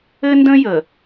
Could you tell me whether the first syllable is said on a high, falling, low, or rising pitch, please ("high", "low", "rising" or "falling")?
high